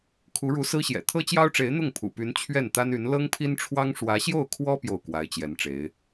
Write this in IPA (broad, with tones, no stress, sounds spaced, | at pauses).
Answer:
kʰ u˧˥ ɻ u˧˥ s ɹ̩˥ ɕ j ɛ̰˨˩ t̪ʰ ɤ˥ t͡ɕ j ɑ˥ ʊ̯ ʈ͡ʂ e˧˥ ɪ̯ n̪ ʊ˥˩ ŋ pʰ ṵ˨˩ p y˧˥ n t͡ɕʰ ɥ ɛ˥˩ n t̪ a˥ n y˧˥ n l ɤ˥ ŋ pʰ i˥ n ʈ͡ʂʰ w ɑ˥ ŋ ʂ w ä˧˥ ɕ j o˥˩ ʊ̯ kʰ w ɔ˥ p j o˥˩ ʊ̯ k w a˧˥ ɪ̯ t͡ɕ j ɛ˧˥ n ʈ͡ʂ e˧˥ ɪ̯